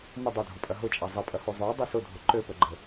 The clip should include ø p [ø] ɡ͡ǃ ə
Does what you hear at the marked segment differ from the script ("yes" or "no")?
yes